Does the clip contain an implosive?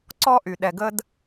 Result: yes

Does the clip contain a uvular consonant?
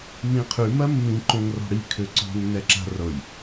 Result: yes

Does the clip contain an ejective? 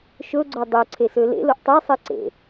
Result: no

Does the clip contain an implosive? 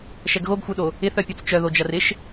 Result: yes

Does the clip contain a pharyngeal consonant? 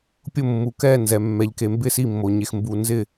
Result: no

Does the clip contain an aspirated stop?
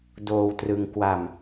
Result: no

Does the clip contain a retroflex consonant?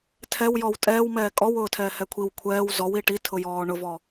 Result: yes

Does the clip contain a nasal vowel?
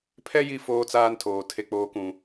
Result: yes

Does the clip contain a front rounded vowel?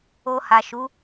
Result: no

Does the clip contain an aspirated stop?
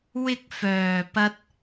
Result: no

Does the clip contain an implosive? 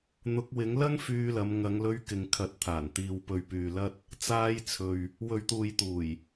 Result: no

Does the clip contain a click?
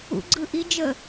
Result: yes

